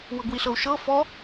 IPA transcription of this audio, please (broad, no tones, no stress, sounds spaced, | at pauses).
w ɤ ɡ w i ɬ ɤ u̯ ʃ ɤ f ɔ